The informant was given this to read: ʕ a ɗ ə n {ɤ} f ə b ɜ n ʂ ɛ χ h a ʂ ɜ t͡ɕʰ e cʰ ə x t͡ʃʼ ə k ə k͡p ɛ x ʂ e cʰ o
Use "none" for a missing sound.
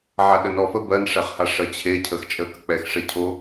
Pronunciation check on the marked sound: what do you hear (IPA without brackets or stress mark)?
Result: ɔ